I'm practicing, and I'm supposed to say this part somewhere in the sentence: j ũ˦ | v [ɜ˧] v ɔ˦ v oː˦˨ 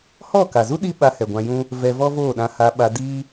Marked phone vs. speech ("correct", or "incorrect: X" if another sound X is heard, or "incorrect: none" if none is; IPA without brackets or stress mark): incorrect: ɛ˧